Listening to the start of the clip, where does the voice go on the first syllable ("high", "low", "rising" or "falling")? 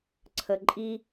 low